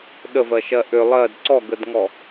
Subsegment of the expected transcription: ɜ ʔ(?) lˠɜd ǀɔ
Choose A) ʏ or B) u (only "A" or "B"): A